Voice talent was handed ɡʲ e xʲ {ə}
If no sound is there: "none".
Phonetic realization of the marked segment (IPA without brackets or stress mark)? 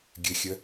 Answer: ɛ